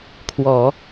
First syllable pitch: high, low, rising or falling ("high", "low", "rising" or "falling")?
low